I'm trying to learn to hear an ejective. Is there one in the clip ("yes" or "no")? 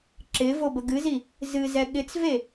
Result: no